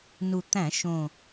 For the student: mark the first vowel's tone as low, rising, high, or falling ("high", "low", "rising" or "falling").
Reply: low